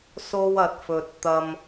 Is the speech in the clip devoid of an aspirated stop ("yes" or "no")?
yes